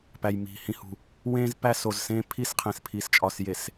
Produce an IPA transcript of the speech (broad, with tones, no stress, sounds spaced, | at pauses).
p æ˨ j m i̤˨ h ĩ˨ h ṳ˨ | w ẽː˦ z p æ˦ s o˨ z s ẽː˦ pʰ i˦˨ s qʰ ẽ˨ s pʰ i˨ s t͡ʃʼ ɒ˨ s j e˨ s